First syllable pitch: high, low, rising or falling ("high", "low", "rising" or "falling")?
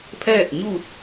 falling